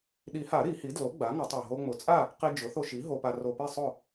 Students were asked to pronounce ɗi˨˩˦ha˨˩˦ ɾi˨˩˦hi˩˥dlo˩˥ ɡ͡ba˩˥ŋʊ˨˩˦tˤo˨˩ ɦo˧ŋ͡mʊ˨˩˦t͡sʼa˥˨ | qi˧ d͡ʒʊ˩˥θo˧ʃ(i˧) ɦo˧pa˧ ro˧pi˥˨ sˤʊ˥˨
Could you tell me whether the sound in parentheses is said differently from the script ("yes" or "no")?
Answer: yes